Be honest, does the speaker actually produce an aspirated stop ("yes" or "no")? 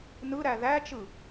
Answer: no